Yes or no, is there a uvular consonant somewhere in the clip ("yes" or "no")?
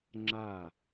no